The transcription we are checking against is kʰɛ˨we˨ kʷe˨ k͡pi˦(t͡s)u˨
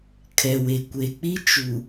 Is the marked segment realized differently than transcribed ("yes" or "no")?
yes